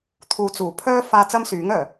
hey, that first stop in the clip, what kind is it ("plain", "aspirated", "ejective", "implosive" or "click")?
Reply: aspirated